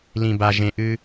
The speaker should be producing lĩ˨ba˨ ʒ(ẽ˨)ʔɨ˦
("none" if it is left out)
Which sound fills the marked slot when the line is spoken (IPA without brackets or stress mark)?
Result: ẽ˨